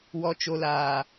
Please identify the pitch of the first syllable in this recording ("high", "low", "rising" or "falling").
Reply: low